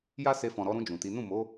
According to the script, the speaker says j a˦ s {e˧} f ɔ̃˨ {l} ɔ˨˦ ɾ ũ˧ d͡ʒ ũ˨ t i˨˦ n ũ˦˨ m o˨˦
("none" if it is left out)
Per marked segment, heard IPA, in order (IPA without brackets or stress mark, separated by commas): e˧, ɾ